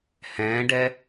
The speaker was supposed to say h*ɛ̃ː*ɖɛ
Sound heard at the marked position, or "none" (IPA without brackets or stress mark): ɛ̃ː